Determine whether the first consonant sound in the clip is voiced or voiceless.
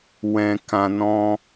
voiced